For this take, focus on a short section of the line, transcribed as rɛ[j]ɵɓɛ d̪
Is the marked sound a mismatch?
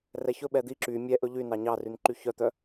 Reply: yes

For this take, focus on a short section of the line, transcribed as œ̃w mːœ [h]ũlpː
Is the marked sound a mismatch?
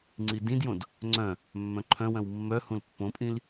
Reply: no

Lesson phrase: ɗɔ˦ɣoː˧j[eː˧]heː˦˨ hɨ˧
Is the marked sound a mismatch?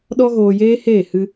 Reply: yes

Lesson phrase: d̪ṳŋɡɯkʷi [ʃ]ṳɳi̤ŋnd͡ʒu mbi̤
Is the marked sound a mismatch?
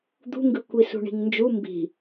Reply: yes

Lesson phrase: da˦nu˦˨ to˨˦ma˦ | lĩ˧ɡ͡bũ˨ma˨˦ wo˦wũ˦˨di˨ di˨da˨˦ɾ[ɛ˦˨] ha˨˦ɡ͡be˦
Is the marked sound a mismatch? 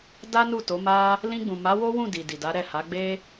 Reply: no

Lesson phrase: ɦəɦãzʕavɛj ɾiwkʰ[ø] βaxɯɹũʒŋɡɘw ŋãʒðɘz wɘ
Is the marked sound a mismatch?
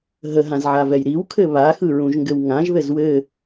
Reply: yes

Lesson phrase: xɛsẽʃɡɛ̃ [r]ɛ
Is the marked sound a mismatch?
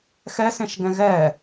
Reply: yes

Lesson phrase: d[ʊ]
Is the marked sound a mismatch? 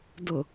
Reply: no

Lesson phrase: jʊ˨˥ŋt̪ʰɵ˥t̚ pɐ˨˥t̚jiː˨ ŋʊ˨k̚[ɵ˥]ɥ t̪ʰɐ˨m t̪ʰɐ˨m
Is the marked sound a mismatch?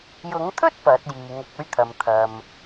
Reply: yes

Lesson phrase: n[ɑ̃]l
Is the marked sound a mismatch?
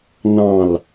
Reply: no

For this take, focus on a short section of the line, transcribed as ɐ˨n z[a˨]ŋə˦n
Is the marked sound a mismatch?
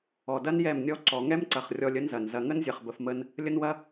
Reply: yes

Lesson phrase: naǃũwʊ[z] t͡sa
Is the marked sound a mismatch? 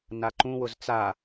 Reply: no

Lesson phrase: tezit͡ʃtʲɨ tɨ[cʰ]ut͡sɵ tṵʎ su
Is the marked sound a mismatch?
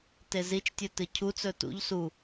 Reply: no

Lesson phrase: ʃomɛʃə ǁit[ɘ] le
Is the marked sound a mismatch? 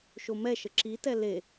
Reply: yes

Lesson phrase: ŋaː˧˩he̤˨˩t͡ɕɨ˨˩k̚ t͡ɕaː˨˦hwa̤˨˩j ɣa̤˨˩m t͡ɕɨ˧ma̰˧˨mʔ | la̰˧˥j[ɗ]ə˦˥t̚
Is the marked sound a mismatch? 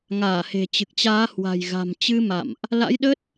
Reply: no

